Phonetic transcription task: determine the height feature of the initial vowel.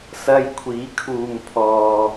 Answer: low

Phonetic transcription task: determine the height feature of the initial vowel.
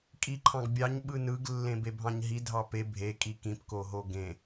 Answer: high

